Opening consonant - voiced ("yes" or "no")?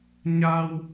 yes